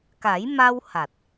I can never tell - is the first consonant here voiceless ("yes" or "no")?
yes